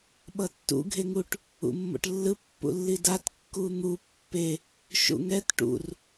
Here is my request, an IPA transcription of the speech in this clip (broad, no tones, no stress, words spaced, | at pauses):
ɓʌtːṵ ɡʱeŋuʈ | ṵmːo̰ʈlːɯ pːṵlːidat kːun̪u pːe | ʃṵŋɛt ʈṵr